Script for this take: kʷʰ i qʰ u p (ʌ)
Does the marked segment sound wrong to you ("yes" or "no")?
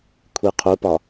yes